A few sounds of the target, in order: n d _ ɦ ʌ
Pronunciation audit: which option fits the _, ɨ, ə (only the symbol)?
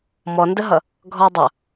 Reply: ə